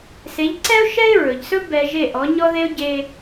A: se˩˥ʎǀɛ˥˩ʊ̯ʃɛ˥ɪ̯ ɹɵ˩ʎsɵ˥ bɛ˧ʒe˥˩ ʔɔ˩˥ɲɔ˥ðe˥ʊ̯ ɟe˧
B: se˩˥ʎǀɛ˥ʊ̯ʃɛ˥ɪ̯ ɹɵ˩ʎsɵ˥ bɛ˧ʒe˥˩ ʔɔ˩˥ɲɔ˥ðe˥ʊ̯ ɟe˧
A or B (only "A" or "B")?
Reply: B